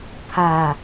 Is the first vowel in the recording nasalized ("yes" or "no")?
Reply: no